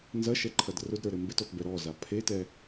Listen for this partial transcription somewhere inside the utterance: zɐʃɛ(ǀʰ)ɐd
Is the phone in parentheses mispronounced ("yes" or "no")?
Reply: yes